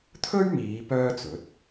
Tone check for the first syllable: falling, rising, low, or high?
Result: high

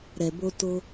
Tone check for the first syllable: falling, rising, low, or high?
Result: low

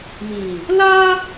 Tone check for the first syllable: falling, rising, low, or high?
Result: low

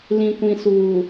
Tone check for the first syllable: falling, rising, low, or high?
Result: low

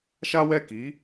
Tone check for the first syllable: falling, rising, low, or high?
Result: high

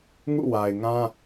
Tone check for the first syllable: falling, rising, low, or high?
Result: falling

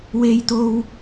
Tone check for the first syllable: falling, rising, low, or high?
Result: high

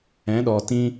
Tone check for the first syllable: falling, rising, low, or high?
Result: rising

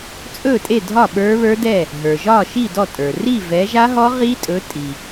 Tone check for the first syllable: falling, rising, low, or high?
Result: falling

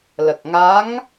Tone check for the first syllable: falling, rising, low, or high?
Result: low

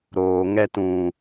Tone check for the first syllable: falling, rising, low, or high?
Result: low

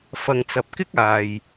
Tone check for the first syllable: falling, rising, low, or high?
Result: low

